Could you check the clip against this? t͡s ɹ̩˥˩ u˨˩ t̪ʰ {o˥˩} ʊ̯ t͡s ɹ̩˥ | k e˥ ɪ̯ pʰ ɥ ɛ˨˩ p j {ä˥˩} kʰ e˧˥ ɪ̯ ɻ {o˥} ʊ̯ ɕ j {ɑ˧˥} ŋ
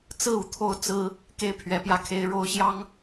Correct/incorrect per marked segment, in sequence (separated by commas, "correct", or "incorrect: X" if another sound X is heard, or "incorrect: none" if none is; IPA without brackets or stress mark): correct, correct, correct, incorrect: ɑ˥